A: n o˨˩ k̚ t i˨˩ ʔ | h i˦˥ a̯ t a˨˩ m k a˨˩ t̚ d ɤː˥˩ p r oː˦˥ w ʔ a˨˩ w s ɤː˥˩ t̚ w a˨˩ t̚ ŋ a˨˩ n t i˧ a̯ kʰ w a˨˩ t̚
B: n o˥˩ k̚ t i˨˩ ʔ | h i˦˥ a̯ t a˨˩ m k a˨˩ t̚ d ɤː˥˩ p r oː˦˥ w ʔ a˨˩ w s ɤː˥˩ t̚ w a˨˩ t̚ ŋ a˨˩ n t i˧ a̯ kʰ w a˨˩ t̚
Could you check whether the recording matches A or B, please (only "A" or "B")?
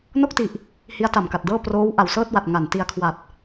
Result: B